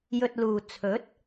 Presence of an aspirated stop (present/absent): present